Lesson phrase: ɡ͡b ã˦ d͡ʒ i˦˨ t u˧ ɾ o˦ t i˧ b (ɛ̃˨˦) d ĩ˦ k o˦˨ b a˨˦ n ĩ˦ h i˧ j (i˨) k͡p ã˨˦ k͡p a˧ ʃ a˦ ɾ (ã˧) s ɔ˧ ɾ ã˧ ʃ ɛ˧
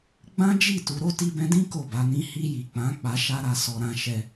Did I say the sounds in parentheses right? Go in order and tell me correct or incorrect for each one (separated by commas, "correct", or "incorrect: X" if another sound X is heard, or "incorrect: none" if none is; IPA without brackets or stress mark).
incorrect: ɛ̃˧, correct, incorrect: a˧